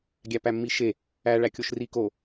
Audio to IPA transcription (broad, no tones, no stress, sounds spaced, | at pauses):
ɡʲ æ p æ mː i ʃ e | æ ɭ æ kʲ o ʃ r i k o